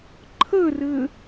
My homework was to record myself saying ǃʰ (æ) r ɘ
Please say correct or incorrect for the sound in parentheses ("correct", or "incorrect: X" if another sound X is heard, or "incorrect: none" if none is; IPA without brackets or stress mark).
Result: incorrect: ə